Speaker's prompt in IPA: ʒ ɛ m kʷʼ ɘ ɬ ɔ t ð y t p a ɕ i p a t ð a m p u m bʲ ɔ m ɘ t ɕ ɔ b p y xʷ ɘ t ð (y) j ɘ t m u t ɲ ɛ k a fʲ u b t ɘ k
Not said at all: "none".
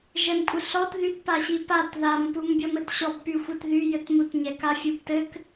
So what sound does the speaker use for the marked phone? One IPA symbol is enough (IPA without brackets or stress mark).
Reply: y